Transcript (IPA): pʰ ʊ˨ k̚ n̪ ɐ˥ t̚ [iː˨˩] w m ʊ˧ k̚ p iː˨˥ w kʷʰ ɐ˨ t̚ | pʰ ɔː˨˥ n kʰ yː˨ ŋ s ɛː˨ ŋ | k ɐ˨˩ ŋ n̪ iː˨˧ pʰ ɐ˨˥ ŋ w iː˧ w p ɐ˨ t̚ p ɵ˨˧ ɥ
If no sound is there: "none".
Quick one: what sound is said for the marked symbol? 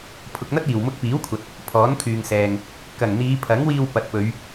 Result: iː˨˩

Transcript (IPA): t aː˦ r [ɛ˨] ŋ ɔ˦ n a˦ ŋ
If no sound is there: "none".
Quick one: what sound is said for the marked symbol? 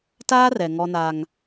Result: ɛ˨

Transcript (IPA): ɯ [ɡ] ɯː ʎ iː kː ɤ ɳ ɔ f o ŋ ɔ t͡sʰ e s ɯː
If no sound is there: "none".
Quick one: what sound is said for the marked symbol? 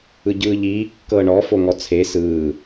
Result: ɟ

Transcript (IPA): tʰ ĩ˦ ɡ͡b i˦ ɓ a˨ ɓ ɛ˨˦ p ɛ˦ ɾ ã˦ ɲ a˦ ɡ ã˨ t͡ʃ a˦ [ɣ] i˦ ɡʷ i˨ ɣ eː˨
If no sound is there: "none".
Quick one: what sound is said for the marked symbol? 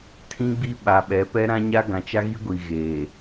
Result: ɣ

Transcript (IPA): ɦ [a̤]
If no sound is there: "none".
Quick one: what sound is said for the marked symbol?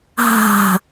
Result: a̤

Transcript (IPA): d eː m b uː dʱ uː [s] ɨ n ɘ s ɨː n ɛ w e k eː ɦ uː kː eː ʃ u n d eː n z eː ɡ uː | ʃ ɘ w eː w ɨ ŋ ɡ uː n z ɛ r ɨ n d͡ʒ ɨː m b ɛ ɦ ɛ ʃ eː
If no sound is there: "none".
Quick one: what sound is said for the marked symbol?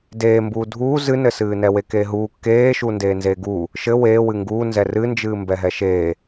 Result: z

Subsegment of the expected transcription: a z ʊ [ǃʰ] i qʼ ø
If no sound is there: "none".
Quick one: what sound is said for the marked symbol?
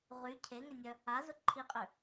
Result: ǃʰ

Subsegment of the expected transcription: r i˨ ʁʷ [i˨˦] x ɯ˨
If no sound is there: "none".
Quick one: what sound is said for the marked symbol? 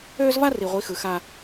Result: i˨˦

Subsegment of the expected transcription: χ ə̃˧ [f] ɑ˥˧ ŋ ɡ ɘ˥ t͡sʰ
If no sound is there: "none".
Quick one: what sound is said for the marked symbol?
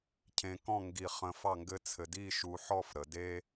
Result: f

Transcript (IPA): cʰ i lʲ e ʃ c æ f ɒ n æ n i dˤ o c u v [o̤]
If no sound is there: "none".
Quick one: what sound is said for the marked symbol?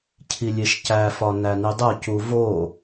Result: o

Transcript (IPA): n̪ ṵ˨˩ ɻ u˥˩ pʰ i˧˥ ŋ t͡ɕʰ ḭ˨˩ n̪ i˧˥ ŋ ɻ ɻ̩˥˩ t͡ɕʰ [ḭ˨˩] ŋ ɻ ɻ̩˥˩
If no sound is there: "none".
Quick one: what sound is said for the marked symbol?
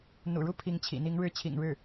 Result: ḭ˨˩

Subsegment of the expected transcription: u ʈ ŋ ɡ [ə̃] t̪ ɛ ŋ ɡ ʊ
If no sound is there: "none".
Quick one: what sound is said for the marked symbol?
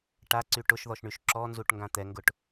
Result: ã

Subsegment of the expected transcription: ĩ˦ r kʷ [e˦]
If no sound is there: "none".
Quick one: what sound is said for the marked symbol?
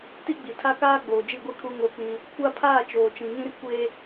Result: e˦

